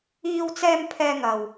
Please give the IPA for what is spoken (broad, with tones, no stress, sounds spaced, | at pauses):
iː˧ w t͡s ɛː˧ m pʰ ɛː˧ ŋ ɐ˨ w